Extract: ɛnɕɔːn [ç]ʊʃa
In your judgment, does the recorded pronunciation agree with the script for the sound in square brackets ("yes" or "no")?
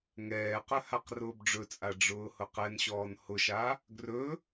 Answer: no